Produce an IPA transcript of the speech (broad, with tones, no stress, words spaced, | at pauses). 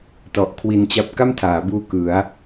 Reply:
tɔ˨˩ʔkʰwi˧n t͡ɕa˥˩p̚ ka˥˩mtʰaː˩˦buː˧ kɯ˩˦a̯